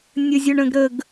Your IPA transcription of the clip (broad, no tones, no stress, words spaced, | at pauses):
nʲəzʲʊɳə̃ɡɾəɡ